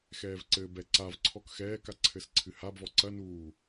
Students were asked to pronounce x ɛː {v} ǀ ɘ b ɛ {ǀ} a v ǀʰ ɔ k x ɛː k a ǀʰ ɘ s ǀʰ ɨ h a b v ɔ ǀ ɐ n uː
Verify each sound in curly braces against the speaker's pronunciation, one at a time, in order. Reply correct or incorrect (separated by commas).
correct, correct